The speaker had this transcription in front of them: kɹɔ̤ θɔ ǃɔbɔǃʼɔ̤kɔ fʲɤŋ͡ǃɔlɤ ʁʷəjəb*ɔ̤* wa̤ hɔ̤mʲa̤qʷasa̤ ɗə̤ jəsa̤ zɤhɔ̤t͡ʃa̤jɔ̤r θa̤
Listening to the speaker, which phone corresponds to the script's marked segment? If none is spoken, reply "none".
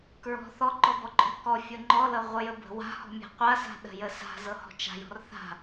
ə̤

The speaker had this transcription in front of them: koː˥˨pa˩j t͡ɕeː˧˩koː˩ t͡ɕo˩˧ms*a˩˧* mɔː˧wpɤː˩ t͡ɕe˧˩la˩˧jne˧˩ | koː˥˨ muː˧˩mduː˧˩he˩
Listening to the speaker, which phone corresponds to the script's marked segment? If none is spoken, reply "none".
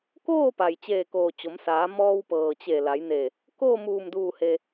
aː˩˧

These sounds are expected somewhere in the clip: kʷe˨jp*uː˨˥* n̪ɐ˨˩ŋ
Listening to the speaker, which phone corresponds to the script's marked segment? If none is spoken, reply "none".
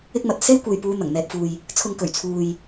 uː˨˧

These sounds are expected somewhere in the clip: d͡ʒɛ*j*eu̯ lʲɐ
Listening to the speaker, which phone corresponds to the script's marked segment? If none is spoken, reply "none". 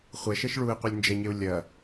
ɲ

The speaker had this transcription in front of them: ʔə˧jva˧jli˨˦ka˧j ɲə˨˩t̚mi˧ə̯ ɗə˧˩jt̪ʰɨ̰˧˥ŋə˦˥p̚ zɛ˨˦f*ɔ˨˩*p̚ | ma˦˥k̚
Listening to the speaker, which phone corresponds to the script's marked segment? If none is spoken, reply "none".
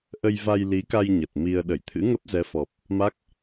ɔ˨˩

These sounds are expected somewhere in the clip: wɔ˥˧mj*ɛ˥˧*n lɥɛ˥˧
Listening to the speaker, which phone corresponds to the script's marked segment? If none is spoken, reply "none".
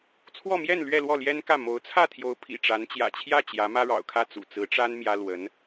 ɛ˥˧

